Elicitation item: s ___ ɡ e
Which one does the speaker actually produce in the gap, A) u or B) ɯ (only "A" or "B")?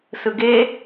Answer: B